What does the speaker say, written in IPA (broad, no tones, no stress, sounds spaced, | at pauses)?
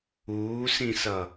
uː s ĩ s ʌ